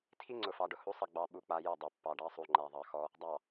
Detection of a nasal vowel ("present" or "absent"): absent